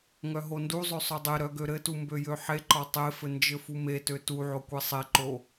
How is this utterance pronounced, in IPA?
ŋ œ ɦ o n d u zˤ ø sˤ œ dˤ e ɾ œ ɡ ø ɾ ɘ t u m b ø j ø ħ e ǃ ɒ tˤ e f ɘ n d͡ʒ ɘ f u m e t ø t u ʕ o kʷ e sˤ e ǃ o

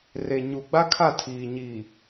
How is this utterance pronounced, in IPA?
r e˨ ɲ u˨ ɡ͡b a˦ kʰ a˦˨ tʰ iː˨ ɲ i˨

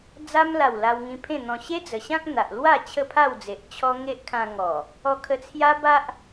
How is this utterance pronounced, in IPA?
d͡z a˧ m l a˨˩ w l a˧ w ŋ ĩ˧ pʰ ẽ˥˧ n̪ ɔ̃˧ ɕ e˦ d͡z ə˨˩ ɕ ã˦ k̚ n̪ a˨ ʔ l w a˥˧ t͡ɕʰ ə˥˧ pʰ a˥˧ w d͡z e˨ ʔ t͡ɕʰ ɔ˧ ŋ e˦ ʔ kʰ ã˧ ŋ ɔ˨˩ | ɔ˧ kʰ ə˧ t͡sʰ j a˦ b a˦ ʔ

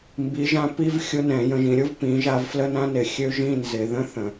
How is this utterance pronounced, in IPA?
m b i˩˧ ʒ ã˧ p i˦˥ v xʲ ʊ˦˥ n ɛ̃˧˩˧ j ə̃˧ ʒ ĩ˩˧ ɾʲ ʊ˦˥ v p ĩ˩˧ ʒ a˧ v f l ə˦˥ n ã˦˥ n ɪ˧˩˧ xʲ ø˦˥ ʒ ĩ˧˥˧ n z ɪ˧˩˧ ð ə̃˧˥˧ θ ə̃˧˩˧

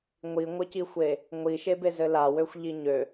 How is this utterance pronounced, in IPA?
ŋʷ i ŋʷ ə c i xʷ e | ŋʷ i ʃ e b e z ɘ l a w ø xʷ ʎ i ɲ ø

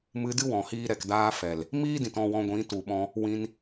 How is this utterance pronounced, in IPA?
m ɨ˧ d ɨ˦ w ɔ̃˨ h iː˧ ɾ ɛ˨ k d aː˦ f ɛ˨ l | m iː˦ d ĩ˨ t ɔ̃˦˨ w ɔ̃˧ ɡʷ ĩ˨˦ t u˨ ɓ ɔ̃˧ | w ĩ˧ n

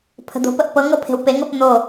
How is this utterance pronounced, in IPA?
pʰ ə̤ d̪ o̤ p ə ʔ p ɤ ŋ ɤ pʰ e̤ w p e ŋ ɤ p n̪ o

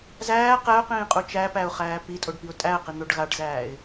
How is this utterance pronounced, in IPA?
z æː q ɛ ʊ̯ q ĩː qʼ u t͡ʃ æ p æ ʊ̯ χ æː p i tʼ o ɖ p i ʊ̯ tʼ æ ə̯ q i n̪ o ɖ ɣ a ɖ z æː ɪ̯

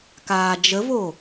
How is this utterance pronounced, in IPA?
k aː d͡ʒ ə v o

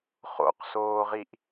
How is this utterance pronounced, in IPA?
χ o̰ q s oː ʁ i ʔ

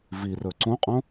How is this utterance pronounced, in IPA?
v i r ɵ ǀ õ qʼ õ

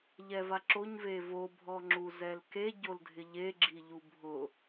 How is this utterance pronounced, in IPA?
ʎ ɛ v a ǁ o ɲ v e v o bʱ ɔ ŋ͡ǁ u z ɛ l k e ɟ o l dʱ ɪ ʎ e ɡ͡ǁ i ʎ u bʱ ʊ

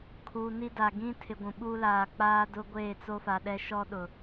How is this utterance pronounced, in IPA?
kʰ u˨ n i˦ d a˨ ɡ ĩ˦ tʰ ɪ˨ ɡʷ ũ˨ ɓ uː˦ l aː˨ k͡p aː˦ d ʊ˦ ɡʷ eː˦˨ t͡s o˦ f a˨ ɗ ɛ˦ ʃ ɔ˦ ɗ ʊ˨

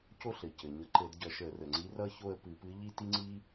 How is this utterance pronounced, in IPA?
c o˥ ɬ ɘ˩ c ɘ˩ ɲ ʌ˧˩˧ ǃ ɘ˧˩˧ d ɟ ʌ˧˩˧ ʃ ə˧˩˧ r ə˩ ŋ͡ǀ i˧˥ r ʌ˥ ç o˥˧ ə̯ p ɨ˧˩˧ p ɨ˧˥ ʎ i˥ t i˥ ŋ͡ǀ i˥

